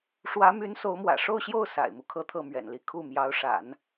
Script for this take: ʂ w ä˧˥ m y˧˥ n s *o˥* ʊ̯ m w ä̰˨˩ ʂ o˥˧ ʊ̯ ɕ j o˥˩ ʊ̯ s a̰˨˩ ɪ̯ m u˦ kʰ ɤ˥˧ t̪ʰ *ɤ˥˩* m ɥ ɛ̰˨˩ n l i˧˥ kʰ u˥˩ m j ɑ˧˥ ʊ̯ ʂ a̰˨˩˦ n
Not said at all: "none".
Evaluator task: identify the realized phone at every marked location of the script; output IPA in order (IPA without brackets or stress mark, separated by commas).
o˧˥, ɤ˥˩